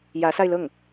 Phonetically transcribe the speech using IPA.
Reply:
jä˧˥sa˧ɪ̯lɤ˥˩ŋ

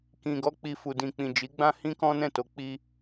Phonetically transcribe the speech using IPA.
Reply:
kĩ˨ɡɔ˧ k͡pi˨fu˨dĩ˨k͡pĩ˨ d͡ʒi˨˦ɡ͡bã˦ hĩ˦kɔ̃˦nɛ̃˦˨to˧ k͡pi˦

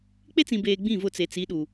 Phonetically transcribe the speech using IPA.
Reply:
k͡pe˦t͡sĩ˨beː˨ ɡ͡bĩ˦˨vʊ˦˨t͡se˨ t͡si˨˦ɗu˨

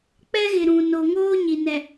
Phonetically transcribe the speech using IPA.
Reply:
k͡pɛ˦ɣɪ˨ ɾũ˨ no˨ŋoː˦ ɲi˨nɛ˨

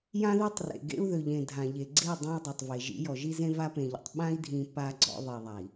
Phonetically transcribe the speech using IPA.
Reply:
jã˦ðe˦tˤrḛ˨ɡḛ˦u̯ ðø˨ʎẽ˨ dʱã˨ʎe˨ ɡ͡ǀe˦˨ dˤẽ˦i̯ dˤø˨tˤve˨ ʒḭ˨˦jɔ˨ʒi˦zẽ˦ va˦pẽ˨ʎɔ̰˨tˤ ɓã˦i̯dʱĩ˨ pa˦ɡ͡ǀɔ̰˦ ðˤi˨ðˤa˨i̯

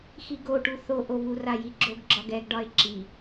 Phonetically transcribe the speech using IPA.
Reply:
xiɡoʈu θoʔoβu rajiɡ͡ǁoɡ ɡ͡ǁɒɡɛɡɖɒe̯ ǁi

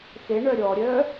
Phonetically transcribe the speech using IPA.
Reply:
xeɳœ ɾʲɔɾʲœː

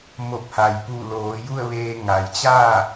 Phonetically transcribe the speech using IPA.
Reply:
mo˧˩p̚ha˩jpu˧˩loː˩˧ ju˥˨ə̯ʋeː˧ ŋa˩jt͡ɕaː˥˨

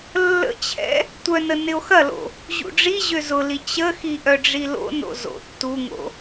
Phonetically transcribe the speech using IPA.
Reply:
lːə̰t͡ɕʰɛ̰ | tʷœnə nɪo̯xɐlo̰ | ʑṵɖ͡ʐiʑø zʊli t͡ɕəxi ʔœɖ͡ʐilo̰no̰ zo̰ tːuŋo̰

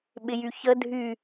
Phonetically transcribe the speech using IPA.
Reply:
ɓɪjyçə dʱy

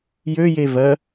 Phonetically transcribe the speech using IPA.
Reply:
jøje vɜ

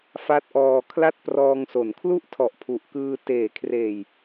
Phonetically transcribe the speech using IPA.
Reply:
fa˦˥t̚ʔɔː˧ kʰla˥˩t̚prɔː˧ŋso˩˦n kʰlu˥˩ʔtʰɔ˨˩ʔ pʰu˨˩ʔkɯː˧ teː˩˦kʰreː˨˩j

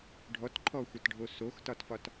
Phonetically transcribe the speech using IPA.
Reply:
ɖʱɔtǃʰɔxʷatɖʱo soxtɒtfɒt

